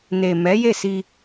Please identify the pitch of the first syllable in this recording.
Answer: low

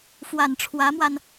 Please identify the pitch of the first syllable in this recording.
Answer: low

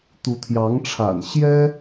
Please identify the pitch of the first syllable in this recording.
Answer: rising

